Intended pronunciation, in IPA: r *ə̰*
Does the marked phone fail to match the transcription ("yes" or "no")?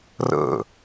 no